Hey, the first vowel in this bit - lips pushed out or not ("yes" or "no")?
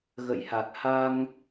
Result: no